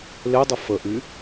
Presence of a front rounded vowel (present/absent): present